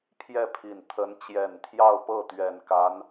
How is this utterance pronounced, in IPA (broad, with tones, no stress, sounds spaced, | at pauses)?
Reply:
pʰ j ɛ˥˩ pʰ i˨˩ n t̪ʰ ə˧˥ n t͡ɕ j ɛ˨˩ n t̪ʰ j ɑ˥˧ ʊ̯ p ɤ˥˩ t̪ ɥ ɛ˨˩ n k a˧˥ n